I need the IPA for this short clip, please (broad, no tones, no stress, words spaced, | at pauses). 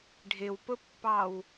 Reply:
ɖʱɪwpʊpːɑw